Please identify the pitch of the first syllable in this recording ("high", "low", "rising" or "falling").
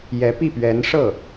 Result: rising